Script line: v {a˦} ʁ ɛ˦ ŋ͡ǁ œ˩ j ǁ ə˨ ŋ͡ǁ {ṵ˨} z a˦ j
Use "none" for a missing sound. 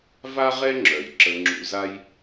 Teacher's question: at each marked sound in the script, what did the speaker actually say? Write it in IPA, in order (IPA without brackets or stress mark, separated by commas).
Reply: a˦, ṵ˨